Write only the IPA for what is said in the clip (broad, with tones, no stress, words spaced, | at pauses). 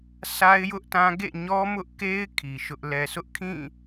sʰa˦ɪ̯jʊ˦ʔtã˦ ɡḛ˦˨ɲɔ˦mʊ˦ʔke˦ɪ̯ kʰi˨ʃʊ˦ʔ lɛ˨sʊ˦ʔkʰĩ˦˨